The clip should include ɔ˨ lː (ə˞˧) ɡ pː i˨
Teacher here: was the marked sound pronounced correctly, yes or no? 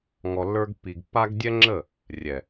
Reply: yes